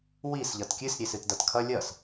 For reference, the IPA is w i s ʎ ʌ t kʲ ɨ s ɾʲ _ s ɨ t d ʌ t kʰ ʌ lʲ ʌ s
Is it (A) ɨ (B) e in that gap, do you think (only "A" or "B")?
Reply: B